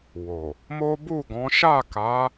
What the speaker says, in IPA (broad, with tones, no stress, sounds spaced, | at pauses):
w o˨ | m o˦ b u˦˨ ɡ ɔ̃˨˦ ʃ a˦˨ k a˨˦